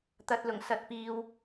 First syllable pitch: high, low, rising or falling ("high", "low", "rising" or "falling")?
low